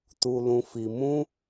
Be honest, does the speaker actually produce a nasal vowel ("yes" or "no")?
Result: yes